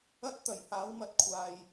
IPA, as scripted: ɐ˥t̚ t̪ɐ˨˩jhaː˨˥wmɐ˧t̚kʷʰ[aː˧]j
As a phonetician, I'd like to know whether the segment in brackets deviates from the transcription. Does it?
yes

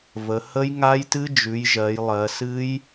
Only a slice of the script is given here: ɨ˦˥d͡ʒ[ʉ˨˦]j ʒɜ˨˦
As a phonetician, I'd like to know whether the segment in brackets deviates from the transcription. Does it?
no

